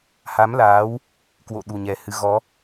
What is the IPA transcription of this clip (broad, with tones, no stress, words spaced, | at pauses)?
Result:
ha˨˦mlaː˨˦w | kwo̰˧˨ɗu˨˩ɲɛ˨˩hɨ˨˦ ɣɔ˨˦